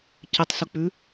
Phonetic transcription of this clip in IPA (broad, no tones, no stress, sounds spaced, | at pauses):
c ɘ tˤ s u k͡p ʉ